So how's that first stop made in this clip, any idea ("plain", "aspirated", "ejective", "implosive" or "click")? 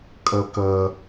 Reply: ejective